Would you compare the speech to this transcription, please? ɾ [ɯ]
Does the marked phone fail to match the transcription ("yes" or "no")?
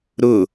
yes